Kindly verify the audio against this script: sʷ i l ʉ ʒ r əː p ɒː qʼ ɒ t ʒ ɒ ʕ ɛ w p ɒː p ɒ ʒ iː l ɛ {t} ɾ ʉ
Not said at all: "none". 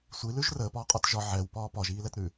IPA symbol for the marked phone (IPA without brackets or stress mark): t